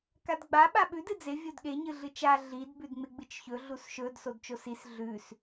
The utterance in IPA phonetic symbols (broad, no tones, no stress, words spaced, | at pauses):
kadɡ͡ba ɓaɓʉd ɨd͡ze vʲodɠe ɲɨɮɨt͡ʃa ɮid bʉdŋ͡meɡ͡bɨt͡ʃçɵ ɮusʃɵd sodt͡ʃosis ɮʉs